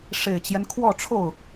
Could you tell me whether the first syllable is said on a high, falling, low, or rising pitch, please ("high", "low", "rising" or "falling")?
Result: low